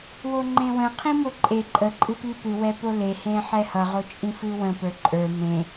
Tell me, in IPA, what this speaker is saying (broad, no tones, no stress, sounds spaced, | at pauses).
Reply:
w o ŋ͡ǃ ẽ w ə̃ qʰ ĩ m o ǃʼ e ǃʼ ə ǃʼ ɨ p i p ɨ w ɛ p o l e h ẽ ħ ɛ h ʌ ʁ o t͡ʃʼ ĩ f ɨ w ə̃ p ə˞ ǃʼ ə˞ m ẽ